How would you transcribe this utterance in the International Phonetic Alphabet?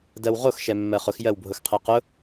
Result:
d ɜ w ʁ o x ʃ ɛ mː ɜ χ ʊ x j ɜ w bʱ ʊ x qʰ ɛ q ʊ

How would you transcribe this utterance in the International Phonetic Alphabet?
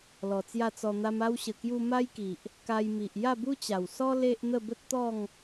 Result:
l ɔ˨˩ t͡s j a˥˧ t͡s ɔ˧ n̪ a˦ m a˧ w ɕ ə˨˩ k j u˧ m a˦ j k i˨ ʔ | k a˧ j m i˨ ʔ j a˥˧ b u˦ t͡ɕ a˨˩ w s ɔ˦ l e˦ ʔ n̪ ə˥˧ b ə˦ t̚ t̪ ɔ˥˧ ŋ

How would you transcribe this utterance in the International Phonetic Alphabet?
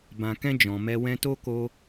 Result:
b ã˨ k ɛ̃˧ d͡ʒ ɔ̃˨ m ɛ˧ w ɛ̃˧ t o˦ k o˧

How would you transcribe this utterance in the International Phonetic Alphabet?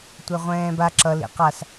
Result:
tʷ ɛ ʁʷ ɛ̃ː b a ǁ ʌ l ḭ q a s

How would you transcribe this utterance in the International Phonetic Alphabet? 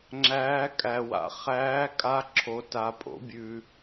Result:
ŋ͡ǁ æː˧˥ kʼ æ˩ w a̰˩ χ æː˧˥ kʼ a˧˥ ǁʰ o˩ t a˩ pʼ o̰˩˧ bʲ ʉ˩

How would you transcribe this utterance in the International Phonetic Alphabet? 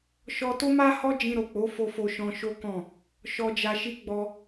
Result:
ʃ ɔ˧ t o˦ m a˦ h ɔ˦ d͡ʒ ĩ˧ ɾ o˨ k͡p o˨˦ f o˧ f o˧ ʃ ɔ̃˧ ʃ o˦ k ɔ̃˦˨ | ʃ ɔ˨ d͡ʒ a˨ ʃ i˨˦ ɡ͡b ɔ˧

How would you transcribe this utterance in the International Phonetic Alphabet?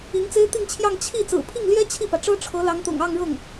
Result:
i˧˥ ŋ t͡s e˥ ɪ̯ t̪ i˥˧ ŋ t͡ɕʰ j ɑ˥˧ ŋ t͡ɕʰ i˥˩ t͡s ɹ̩˨˩ pʰ i˥˩ ŋ l j ɛ˥ t͡ɕʰ i˥˩ p ä˩ ʈ͡ʂ ɤ˥ ʈ͡ʂʰ ɤ˧˥ l ɑ˧˥ ŋ t̪ ʊ̰˨˩ ŋ ɑ˥˧ ŋ ɻ ɤ˥˩ ŋ

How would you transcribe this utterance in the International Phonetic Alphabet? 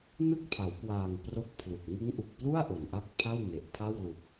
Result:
n ɯ˥˩ k̚ pʰ a˩˦ w k w aː˨˩ ŋ p r o˥˩ k̚ pʰ l u˨˩ k̚ ŋ ɯ˦˥ ŋ ʔ u˨˩ k̚ p l u˥˩ a̯ ʔ o˨˩ n ʔ a˥˩ k̚ pʰ a˥˩ w n e˨˩ ʔ pʰ a˥˩ w l u˨˩ k̚

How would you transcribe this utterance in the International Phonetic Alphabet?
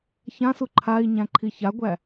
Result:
ç ã s u ǃʰ a i̯ ɲ æ̃ ǃʰ i ç a ɡʷ æ

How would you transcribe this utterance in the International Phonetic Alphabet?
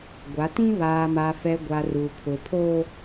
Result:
ɡʷ a˨˦ t ĩ˦ β aː˨ m a˨ f ɛ˨ ɡʷ a˨ r u˨ pʰ ʊ˨ pʰ o˦

